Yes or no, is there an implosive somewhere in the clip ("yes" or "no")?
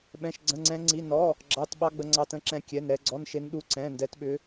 yes